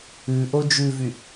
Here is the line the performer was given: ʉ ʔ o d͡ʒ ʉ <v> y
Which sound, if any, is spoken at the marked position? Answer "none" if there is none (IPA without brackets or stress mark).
v